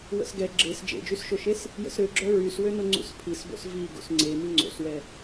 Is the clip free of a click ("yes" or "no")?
no